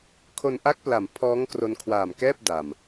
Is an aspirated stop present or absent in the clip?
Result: present